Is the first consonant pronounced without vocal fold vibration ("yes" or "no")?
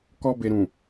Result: yes